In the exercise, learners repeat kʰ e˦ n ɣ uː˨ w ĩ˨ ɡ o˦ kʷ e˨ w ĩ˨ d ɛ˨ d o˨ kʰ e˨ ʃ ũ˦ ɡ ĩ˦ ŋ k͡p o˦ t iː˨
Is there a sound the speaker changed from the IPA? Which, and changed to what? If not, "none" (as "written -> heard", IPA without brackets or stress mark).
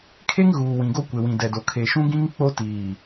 n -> ŋ